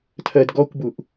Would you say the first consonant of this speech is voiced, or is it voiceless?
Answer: voiceless